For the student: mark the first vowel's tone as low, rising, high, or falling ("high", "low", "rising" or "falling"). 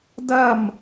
falling